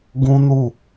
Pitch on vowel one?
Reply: high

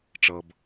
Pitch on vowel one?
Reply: low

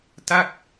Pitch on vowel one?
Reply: falling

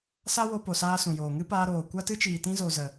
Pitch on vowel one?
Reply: high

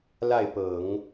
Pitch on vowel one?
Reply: falling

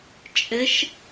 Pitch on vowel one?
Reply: rising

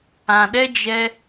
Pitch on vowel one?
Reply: low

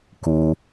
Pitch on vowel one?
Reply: low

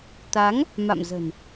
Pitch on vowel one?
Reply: rising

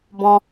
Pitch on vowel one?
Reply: high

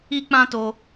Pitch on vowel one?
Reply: high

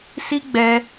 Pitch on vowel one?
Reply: high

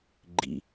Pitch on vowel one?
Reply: low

